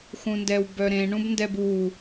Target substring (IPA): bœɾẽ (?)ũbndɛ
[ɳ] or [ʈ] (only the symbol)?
ɳ